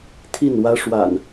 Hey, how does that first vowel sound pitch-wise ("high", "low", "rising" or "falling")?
falling